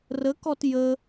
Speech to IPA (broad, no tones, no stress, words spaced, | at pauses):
rəkɔt jə